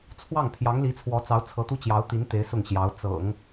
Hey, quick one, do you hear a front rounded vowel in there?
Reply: no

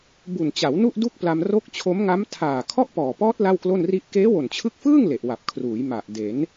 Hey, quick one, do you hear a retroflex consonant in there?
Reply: no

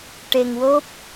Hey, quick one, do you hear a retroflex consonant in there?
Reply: yes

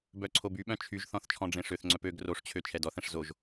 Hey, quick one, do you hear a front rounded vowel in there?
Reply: yes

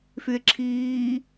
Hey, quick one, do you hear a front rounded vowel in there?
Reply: yes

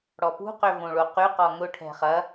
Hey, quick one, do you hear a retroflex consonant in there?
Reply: yes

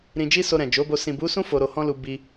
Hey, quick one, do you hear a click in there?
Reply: no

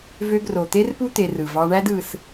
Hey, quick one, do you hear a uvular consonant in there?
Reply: no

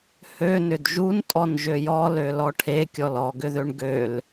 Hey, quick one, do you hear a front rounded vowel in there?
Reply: yes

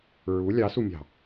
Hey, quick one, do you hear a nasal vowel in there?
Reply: no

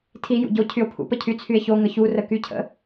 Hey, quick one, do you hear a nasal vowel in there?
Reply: no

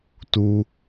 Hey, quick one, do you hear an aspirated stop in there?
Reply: no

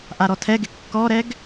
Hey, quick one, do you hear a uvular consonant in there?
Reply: no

